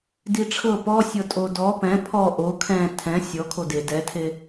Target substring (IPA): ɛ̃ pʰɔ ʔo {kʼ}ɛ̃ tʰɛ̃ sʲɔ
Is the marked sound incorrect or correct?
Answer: incorrect: kʰ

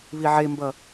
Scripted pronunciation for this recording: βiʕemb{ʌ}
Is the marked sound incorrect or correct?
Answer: correct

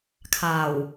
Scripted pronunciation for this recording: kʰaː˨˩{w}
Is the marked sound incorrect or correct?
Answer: correct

